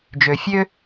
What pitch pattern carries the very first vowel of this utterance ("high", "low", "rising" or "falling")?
low